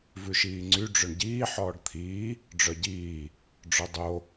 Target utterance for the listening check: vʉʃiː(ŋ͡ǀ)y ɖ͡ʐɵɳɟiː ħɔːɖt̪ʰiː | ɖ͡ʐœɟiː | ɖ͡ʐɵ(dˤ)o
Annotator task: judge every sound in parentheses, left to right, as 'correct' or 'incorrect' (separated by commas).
correct, correct